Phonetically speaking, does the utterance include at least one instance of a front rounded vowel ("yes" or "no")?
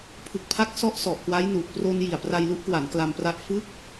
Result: no